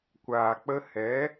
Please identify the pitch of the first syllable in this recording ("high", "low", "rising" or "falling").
low